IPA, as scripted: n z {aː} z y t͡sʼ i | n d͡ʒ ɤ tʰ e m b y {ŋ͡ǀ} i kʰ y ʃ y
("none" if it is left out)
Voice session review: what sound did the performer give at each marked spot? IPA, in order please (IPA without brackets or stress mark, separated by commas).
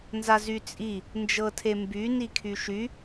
a, n